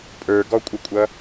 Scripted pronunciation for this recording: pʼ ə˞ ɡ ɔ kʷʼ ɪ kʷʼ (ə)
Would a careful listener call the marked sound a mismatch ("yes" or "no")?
yes